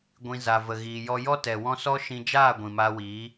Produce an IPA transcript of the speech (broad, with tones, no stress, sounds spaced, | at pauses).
ɡʷ ĩ˨ z a˨ v ə˨ ɣ iː˨ j ɔ˧ j ɔ˦ t ɛ˨ w ɔ̃˦ s ɔ˦ ʃ ĩ˧ d͡ʒ aː˦˨ ɡʷ ĩ˨ m aː˧ w iː˨˦